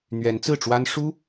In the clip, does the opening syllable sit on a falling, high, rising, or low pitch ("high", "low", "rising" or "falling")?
rising